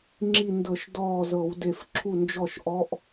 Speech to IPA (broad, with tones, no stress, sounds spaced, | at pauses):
ŋ͡ǁ i˧˩ n d ɤ˧˩˧ ʃ d ɔː˧˩ z ɤ˧˩˧ w d e˧˩ f ǁʰ u˧˩ n d͡ʒ ɔ˧˩ ʃ ʔ ɔ˧˥ ʔ